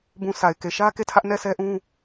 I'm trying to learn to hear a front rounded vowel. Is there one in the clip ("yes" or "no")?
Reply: no